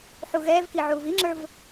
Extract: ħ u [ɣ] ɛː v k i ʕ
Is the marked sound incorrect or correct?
correct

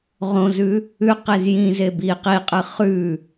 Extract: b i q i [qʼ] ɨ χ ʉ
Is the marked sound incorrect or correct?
correct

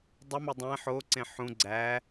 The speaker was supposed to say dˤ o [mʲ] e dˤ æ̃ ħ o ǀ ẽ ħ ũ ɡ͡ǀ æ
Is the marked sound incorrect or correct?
incorrect: m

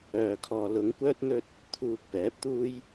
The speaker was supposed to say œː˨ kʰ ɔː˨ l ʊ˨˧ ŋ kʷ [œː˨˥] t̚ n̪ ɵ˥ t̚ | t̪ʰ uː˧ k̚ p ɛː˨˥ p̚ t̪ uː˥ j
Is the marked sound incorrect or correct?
incorrect: œː˥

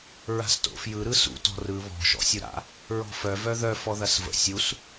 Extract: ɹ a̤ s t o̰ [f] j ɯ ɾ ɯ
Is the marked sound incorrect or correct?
correct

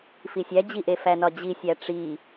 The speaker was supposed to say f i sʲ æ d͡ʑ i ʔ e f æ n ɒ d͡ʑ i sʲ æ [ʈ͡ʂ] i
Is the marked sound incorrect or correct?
correct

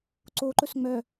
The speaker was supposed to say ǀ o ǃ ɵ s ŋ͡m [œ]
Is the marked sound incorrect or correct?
correct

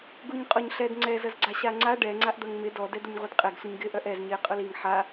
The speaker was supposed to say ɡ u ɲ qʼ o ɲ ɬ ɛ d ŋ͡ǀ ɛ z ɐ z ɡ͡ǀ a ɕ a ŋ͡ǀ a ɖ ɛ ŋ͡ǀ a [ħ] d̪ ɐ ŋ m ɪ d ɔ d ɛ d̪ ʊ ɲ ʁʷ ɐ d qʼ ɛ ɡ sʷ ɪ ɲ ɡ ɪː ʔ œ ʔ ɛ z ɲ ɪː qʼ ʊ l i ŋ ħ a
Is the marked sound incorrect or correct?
incorrect: ʔ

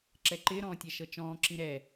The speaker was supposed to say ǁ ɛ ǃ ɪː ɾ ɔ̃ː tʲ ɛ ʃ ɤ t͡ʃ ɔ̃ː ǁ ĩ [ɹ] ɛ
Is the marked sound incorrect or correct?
incorrect: ɾ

